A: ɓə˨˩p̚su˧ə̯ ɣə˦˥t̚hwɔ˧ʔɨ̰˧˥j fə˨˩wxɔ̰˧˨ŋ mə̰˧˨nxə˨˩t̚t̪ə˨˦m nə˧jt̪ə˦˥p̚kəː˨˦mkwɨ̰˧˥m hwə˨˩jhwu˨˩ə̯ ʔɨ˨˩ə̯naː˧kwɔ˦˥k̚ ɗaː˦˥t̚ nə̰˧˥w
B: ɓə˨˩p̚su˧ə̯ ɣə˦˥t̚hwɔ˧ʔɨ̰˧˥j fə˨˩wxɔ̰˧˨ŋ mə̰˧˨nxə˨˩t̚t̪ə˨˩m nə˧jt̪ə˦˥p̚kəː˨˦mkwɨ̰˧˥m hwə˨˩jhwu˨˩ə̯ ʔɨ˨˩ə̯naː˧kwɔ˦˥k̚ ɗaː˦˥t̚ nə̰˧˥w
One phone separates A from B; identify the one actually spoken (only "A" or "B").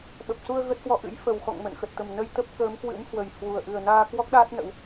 B